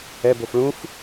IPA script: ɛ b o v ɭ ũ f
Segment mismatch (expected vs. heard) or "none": v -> f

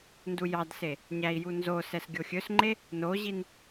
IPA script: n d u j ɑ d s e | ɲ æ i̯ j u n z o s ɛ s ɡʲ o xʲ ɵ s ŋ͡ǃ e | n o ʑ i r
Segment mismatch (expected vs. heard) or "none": r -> n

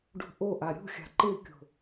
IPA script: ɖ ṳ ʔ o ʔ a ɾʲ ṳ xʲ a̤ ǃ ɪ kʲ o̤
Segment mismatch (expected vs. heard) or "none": none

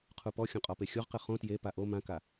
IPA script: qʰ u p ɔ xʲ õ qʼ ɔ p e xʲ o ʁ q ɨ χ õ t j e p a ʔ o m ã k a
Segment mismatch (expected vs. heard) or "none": none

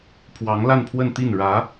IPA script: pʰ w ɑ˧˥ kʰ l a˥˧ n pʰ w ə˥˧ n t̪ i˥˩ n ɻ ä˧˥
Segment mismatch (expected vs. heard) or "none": kʰ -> ŋ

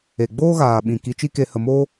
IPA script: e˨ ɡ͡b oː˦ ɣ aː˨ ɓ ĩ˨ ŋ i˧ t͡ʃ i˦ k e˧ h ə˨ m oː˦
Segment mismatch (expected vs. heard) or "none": ŋ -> k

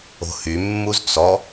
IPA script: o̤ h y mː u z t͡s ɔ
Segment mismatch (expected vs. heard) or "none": none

